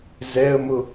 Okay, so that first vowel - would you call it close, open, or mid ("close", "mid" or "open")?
mid